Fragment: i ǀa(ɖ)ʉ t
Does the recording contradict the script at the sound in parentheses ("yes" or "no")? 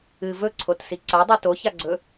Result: yes